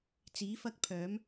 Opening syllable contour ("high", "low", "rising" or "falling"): rising